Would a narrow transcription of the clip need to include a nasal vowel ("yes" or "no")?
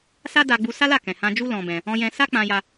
yes